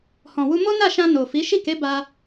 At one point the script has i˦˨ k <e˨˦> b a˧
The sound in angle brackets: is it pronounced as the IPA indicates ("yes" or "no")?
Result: yes